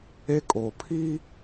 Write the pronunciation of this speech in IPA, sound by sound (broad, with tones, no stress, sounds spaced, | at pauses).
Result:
e˦ kʼ oː˨ pʰ iː˦